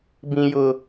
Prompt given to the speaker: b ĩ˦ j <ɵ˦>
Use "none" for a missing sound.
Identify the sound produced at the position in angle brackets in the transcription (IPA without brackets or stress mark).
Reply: ʊ˦